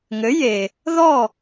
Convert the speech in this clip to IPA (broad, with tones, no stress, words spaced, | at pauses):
ŋɘ˩˥je˩ | ðɔ˥˩